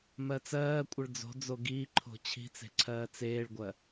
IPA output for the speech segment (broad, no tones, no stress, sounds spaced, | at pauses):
m ɜ t͡s ɜː kʷʼ ə ɭ d͡z o̤ d͡z o ɡ iː ǃʰ o̤ t͡ɕʰ i̤ t͡s e̤ ǀʰ ɜː t͡s eː ɭ ɡʷ ɜ